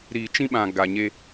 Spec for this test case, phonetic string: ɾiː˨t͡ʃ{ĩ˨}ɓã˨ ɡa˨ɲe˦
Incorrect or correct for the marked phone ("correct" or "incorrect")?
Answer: incorrect